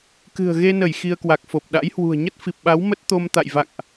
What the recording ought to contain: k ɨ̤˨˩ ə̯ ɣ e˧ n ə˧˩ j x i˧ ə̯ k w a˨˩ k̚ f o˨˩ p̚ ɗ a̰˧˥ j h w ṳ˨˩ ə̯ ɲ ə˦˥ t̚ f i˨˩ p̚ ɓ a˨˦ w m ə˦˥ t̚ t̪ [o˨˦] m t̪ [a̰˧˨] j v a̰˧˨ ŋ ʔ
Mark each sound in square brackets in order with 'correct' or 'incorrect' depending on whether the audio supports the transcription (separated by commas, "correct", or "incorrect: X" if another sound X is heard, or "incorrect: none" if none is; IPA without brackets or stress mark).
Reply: incorrect: o˧, correct